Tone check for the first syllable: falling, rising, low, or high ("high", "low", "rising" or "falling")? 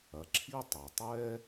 low